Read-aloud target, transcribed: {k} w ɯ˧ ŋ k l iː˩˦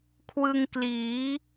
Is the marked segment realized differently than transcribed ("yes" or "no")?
yes